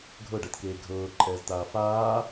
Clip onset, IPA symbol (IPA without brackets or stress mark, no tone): ɡʱ